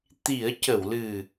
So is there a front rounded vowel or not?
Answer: no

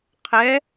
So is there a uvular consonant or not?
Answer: yes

